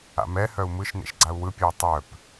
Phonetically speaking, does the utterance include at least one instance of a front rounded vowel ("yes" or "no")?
yes